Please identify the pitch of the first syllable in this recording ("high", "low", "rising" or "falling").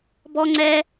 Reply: high